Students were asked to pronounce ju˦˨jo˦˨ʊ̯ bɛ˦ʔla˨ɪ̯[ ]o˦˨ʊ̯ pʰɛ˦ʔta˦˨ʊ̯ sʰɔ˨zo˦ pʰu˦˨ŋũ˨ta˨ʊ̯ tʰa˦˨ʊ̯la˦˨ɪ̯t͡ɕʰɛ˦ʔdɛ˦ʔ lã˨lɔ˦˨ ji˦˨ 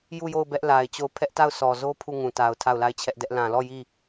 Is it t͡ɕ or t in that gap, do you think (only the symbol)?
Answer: t͡ɕ